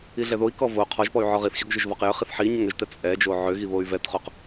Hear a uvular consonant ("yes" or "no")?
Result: yes